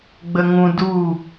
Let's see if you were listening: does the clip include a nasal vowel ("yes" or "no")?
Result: yes